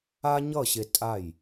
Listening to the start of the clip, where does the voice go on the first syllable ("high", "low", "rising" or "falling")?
high